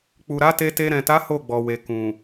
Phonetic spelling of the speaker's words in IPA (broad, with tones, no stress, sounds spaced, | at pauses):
k͡p u˨ ɾ a˨˦ t e˧ t e˧ ɾ ɛ̃˨ t a˨˦ h o˦˨ ɡ͡b ɔ˨ w e˨ k ũ˨